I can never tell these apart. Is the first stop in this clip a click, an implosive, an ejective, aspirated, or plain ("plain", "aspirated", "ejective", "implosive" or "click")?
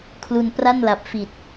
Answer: aspirated